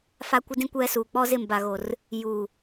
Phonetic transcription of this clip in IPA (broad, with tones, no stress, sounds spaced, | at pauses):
f a˦ kʷ ɪ˦ d ĩ˦ kʷ ɛ˦ s uː˨ k͡p ɔ˦ z ɪ˦˨ m b a˨ ɣ o˨ r | j uː˨